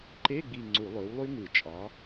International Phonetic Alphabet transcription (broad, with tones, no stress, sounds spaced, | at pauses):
ǃ e˧˥˧ ɡ͡b i˦˨ ŋ͡ǀ u˧˩˧ lˠ ø˨˥ w lˠ y˦˥ ŋ ɯ˧˩˧ t͡ʃʼ ɑ˨˥